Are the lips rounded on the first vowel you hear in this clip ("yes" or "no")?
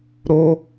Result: yes